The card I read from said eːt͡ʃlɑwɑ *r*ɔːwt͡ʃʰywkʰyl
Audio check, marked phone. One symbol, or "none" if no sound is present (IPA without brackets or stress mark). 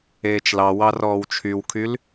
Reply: r